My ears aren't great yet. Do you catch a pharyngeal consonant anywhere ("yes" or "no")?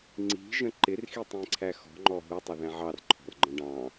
yes